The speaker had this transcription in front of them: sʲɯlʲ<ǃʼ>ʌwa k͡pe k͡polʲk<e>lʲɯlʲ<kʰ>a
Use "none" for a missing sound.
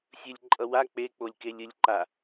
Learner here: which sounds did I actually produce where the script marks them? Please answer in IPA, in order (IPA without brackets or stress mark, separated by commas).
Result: ǃʼ, e, ǃ